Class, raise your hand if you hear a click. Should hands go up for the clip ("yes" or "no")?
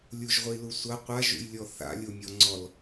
yes